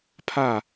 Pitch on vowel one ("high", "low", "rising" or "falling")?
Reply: falling